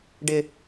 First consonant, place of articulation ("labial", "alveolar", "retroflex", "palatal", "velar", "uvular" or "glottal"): retroflex